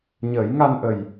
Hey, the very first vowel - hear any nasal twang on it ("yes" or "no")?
no